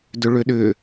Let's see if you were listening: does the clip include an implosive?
yes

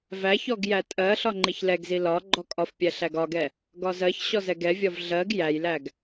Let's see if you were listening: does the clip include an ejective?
yes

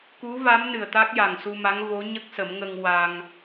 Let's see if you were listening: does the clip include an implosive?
no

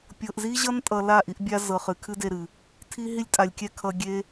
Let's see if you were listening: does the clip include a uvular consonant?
yes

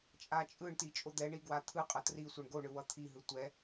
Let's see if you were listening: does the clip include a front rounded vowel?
no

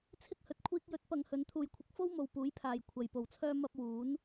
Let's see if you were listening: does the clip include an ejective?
no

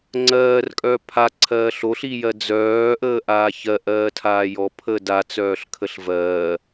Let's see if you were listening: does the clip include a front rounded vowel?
yes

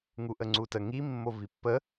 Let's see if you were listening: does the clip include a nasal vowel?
no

